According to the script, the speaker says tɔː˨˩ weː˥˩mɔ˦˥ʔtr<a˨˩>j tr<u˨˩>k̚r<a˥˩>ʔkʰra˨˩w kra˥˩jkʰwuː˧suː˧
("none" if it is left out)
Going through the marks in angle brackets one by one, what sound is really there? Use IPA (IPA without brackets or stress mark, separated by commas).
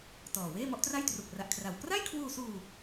a˥˩, u˨˩, a˨˩